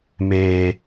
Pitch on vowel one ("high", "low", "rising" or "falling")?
low